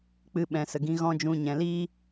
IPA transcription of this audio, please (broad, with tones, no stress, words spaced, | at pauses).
k͡pɨ˧ ɓɛ̃˨ sə˨ɡĩ˧ ɣɔ̃˦ d͡ʒũ˦ɲɛ̃˧ liː˦